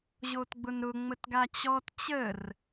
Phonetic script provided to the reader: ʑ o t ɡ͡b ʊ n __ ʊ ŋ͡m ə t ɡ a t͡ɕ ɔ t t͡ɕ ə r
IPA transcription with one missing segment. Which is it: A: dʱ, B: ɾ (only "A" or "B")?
B